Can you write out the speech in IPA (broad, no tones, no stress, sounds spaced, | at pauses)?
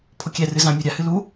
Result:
pʰ o kʲ ɛ r ɨ z ã mʲ u ɾʲ a h ɨ l u